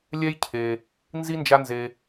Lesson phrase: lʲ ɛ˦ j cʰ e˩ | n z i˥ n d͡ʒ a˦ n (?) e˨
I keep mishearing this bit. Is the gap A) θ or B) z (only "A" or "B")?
B